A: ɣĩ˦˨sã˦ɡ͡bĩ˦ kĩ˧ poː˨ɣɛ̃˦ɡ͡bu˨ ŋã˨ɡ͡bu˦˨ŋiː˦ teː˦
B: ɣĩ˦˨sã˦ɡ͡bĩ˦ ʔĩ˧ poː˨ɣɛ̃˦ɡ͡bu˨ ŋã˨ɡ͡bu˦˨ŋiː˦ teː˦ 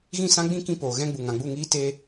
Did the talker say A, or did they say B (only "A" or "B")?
A